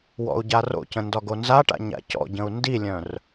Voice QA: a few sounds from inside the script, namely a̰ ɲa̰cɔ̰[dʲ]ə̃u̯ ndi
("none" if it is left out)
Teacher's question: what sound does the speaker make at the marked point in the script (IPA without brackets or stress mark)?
ɟ